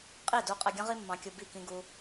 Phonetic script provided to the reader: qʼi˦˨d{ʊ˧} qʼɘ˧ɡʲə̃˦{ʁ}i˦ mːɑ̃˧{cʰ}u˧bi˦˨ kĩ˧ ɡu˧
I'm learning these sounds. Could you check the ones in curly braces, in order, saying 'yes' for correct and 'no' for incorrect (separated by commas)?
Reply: no, yes, no